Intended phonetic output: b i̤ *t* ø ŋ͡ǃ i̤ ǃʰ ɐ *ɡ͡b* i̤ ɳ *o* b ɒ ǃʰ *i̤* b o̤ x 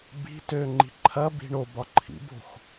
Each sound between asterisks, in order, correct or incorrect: correct, incorrect, correct, incorrect

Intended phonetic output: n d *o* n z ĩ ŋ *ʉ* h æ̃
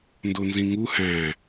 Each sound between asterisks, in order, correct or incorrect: correct, incorrect

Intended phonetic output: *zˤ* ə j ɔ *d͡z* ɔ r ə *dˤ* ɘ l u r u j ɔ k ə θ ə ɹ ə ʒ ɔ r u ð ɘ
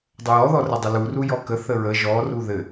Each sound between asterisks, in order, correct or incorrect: incorrect, incorrect, correct

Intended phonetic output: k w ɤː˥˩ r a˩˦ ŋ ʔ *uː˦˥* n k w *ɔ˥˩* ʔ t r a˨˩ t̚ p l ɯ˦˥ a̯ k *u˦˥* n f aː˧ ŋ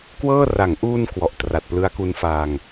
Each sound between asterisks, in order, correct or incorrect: incorrect, incorrect, correct

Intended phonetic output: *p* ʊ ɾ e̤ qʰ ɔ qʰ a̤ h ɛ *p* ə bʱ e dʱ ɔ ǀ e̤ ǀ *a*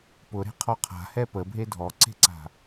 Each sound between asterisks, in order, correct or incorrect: correct, correct, incorrect

